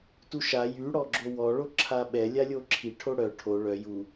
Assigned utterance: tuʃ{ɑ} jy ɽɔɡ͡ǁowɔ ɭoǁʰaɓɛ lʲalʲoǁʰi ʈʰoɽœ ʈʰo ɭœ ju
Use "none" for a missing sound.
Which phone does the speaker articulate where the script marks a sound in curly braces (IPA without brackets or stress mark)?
a